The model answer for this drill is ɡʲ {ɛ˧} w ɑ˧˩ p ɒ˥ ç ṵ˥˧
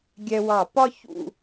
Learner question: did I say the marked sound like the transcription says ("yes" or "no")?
yes